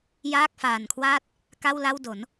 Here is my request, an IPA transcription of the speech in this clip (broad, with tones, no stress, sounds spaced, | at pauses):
j aː˥˩ k̚ f aː˨˩ n kʰ w aː˥˩ t̚ | k a˥˩ w l a˥˩ w d o˩˦ n